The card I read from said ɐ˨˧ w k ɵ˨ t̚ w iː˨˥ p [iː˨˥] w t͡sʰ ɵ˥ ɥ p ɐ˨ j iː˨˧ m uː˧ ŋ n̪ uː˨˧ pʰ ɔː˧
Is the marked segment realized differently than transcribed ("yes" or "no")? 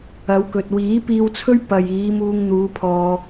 yes